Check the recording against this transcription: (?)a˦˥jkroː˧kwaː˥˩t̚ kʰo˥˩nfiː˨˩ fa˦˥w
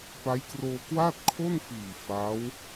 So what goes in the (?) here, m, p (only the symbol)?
p